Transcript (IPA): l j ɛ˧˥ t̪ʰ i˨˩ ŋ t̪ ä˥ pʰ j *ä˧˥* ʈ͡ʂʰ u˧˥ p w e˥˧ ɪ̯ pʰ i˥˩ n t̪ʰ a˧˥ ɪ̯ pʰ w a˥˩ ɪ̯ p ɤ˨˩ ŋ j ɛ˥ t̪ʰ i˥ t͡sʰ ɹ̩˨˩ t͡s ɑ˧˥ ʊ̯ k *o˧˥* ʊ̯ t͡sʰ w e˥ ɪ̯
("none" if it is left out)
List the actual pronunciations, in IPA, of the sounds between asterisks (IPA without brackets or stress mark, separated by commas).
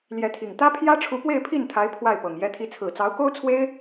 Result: ä˥, o˥